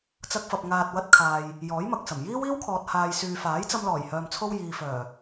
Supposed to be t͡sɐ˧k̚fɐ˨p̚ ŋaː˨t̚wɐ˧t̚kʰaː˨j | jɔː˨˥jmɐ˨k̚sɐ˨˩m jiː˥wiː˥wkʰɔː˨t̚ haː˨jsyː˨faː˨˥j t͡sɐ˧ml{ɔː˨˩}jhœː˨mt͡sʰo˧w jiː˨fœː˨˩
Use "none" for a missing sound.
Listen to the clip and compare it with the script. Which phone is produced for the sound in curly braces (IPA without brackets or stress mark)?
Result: ɔː˨˩